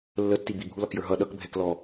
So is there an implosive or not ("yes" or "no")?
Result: yes